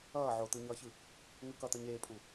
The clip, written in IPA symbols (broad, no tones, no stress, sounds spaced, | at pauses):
ʌː ʕ o t̪ ɯ ɲ ʌː ç ɯ | ŋ ɯ k ʌ t̪ ʌ ɲ eː pʼ u